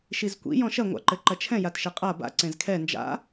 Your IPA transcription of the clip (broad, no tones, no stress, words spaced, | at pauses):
ʃizkʷḭ jɔ̃ʃɐ ŋʷa̰ǃɘǃɐt͡ʃʰɛ̃ jatʃɘqʼa ba̰ ǀẽzkʰɛ nd͡ʒa̰